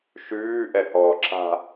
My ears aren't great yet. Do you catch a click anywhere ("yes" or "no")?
yes